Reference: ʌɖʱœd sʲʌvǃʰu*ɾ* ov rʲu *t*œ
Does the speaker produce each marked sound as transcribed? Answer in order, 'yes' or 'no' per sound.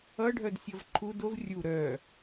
no, no

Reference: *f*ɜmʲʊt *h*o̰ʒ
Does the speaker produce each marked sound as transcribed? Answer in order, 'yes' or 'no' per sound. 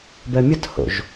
no, yes

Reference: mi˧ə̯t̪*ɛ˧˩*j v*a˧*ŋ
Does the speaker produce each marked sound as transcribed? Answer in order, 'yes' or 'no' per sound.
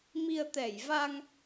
yes, yes

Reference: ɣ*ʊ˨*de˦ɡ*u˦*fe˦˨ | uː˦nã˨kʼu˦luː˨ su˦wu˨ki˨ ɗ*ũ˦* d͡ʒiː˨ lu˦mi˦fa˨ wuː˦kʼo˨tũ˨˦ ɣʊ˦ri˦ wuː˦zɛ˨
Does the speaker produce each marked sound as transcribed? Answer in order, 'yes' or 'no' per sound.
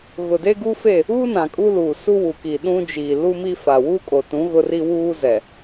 yes, yes, yes

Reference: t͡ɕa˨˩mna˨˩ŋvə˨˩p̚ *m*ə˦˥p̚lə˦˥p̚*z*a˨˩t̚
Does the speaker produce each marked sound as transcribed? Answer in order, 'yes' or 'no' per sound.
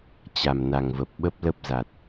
no, yes

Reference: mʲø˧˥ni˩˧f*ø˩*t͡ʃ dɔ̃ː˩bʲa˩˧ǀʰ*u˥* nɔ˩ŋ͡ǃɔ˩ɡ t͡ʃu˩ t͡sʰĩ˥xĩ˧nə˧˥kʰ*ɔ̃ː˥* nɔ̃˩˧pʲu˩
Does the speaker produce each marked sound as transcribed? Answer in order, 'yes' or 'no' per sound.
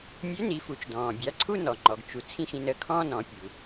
no, no, yes

